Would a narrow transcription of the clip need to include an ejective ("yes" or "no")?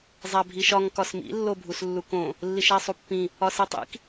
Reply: no